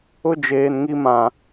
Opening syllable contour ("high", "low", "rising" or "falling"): high